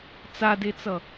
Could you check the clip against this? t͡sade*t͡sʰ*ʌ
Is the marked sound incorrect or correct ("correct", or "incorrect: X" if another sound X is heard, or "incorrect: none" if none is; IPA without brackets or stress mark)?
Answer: incorrect: t͡s